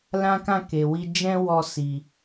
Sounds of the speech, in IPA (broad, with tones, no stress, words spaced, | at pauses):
lã˦kã˦˨ ke˨wi˧d͡ʒɛ̃˦ wɔ˦˨si˨